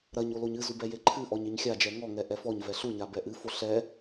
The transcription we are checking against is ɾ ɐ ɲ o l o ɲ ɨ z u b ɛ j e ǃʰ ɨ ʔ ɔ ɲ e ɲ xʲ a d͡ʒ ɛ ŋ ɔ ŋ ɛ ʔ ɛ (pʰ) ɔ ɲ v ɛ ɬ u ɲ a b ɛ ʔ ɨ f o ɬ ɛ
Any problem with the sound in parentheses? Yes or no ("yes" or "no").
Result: yes